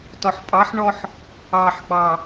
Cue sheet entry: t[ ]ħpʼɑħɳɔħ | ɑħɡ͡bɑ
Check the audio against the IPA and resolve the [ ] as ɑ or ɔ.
ɔ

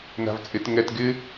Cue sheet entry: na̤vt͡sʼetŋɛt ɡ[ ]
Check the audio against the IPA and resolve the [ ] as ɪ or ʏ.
ɪ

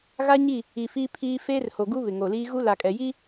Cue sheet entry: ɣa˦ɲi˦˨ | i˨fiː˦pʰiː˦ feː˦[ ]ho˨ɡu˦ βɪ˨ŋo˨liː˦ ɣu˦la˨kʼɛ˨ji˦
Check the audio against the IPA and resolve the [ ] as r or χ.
r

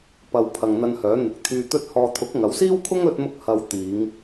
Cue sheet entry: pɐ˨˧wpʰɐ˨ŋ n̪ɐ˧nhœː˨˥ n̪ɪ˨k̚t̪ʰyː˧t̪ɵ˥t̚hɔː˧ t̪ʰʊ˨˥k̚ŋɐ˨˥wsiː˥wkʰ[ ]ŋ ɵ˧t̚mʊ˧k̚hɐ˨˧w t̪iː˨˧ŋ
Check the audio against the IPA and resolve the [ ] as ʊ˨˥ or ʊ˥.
ʊ˥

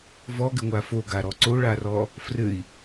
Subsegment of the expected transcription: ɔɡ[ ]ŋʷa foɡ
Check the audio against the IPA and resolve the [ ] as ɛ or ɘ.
ɘ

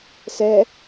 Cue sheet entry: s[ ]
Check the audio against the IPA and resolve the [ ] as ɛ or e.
ɛ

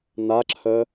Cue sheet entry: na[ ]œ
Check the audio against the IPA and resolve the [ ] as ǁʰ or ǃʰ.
ǁʰ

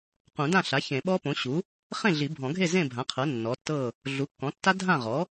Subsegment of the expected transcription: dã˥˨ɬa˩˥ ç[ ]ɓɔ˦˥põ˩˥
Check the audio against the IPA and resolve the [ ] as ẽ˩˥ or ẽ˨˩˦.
ẽ˨˩˦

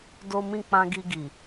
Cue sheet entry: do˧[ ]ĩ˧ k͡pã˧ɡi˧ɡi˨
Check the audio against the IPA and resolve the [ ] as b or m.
m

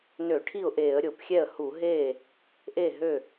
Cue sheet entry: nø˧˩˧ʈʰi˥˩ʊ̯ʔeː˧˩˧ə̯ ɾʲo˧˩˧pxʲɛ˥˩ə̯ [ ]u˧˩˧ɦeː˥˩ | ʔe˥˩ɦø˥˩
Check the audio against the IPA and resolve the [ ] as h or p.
h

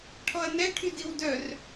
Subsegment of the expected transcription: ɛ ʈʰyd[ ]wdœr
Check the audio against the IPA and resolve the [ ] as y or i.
i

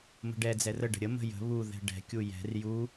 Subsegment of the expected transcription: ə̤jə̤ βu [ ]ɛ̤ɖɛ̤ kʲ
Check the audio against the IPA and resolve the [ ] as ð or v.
ð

